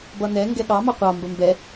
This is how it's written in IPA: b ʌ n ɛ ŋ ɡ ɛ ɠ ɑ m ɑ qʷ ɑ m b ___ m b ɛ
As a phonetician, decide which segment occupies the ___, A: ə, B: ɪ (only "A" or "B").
A